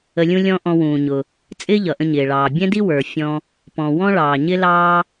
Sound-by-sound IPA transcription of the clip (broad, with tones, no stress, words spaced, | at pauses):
ə˧lʲũ˥lʲɔ̃˥ ʔɔ̃˧wũː˩ɲʊ˩ | t͡sʼɪː˥ʎʌ˩ʔə̃˧ɲɪː˩ ɭɑː˩ bʲɛ̃˥di˥wə˞˩ fʲɔ̃˧ | pɔ̃˩wɔ̃˥ɭɑː˩ɲɪ˥ lɑː˥